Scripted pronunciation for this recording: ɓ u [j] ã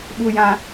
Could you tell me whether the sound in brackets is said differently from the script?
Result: no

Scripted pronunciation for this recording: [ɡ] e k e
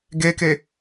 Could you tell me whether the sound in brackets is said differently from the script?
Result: no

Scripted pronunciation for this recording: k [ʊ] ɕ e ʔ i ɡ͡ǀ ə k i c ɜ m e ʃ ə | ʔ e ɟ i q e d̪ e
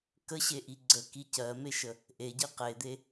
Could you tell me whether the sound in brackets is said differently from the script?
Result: yes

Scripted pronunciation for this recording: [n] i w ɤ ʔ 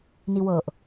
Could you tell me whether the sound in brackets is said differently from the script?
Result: no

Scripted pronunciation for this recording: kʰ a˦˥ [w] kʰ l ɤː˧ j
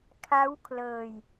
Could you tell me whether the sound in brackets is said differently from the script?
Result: no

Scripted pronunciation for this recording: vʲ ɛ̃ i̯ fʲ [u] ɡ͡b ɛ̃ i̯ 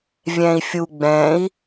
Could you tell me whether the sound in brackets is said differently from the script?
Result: no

